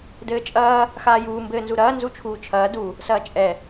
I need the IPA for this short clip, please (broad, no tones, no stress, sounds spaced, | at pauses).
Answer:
d ɘː t͡ʃʼ ɐː | x aː j uː m b ɘː n z u ɾ ɐː n z u t͡ʃʰ uː t͡ʃʰ ɐː d u | s ɐː t͡ʃʼ ɛ